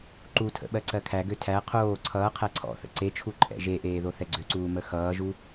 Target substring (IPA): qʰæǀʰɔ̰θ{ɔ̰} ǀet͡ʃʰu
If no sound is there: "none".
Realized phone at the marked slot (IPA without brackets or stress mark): ə̰